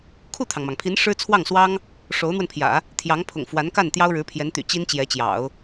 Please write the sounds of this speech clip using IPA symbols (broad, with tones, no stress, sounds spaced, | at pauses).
kʰ u˥˩ t̪ʰ ɑ˩ ŋ m ɑ˩ ŋ pʰ i˧˥ n ʂ ɻ̩˥ t͡sʰ w ɑ˥˩ ŋ s w ɑ˥ ŋ | ʂ o˧˥ ʊ̯ n̪ w ə˧ n pʰ j ä̰˨˩˦ | t̪ʰ j ɑ˧˥ ŋ pʰ ʊ̰˨˩ ŋ f w a˧˥ n k a˥˩ n t̪ j ɑ˥ ʊ̯ ɻ ɻ̩˧˥ pʰ j ɛ˧˥ n t̪ y̰˨˩ t͡ɕ i˥ n t͡ɕ j ɛ˧˥ t͡ɕ j ɑ̰˨˩˦ ʊ̯